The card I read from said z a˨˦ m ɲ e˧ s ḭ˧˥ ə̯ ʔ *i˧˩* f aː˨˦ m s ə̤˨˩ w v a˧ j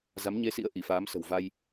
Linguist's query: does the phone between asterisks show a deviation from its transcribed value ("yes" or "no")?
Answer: no